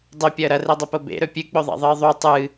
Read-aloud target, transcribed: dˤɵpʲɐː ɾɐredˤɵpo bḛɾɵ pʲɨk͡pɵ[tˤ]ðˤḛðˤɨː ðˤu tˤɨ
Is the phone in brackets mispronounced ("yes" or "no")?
yes